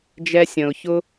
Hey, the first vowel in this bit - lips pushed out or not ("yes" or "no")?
no